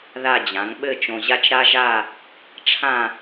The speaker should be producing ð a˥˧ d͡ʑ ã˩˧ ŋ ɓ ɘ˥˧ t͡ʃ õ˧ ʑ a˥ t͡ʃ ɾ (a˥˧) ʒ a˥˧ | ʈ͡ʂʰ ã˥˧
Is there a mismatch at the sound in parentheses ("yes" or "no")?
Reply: yes